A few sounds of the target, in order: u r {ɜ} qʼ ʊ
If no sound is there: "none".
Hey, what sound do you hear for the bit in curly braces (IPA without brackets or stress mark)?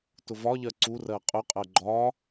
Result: ɜ